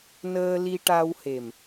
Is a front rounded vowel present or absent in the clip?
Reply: absent